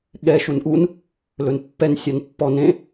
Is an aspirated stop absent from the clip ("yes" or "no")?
yes